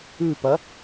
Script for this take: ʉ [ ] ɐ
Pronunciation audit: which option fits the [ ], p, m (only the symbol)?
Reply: p